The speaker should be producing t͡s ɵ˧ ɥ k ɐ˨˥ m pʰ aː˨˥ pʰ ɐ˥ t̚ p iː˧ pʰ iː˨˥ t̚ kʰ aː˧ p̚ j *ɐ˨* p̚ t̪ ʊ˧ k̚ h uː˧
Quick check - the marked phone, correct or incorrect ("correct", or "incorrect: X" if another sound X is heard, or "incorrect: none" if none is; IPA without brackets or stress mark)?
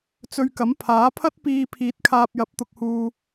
incorrect: ɐ˨˥